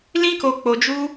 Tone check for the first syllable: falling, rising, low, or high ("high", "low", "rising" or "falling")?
high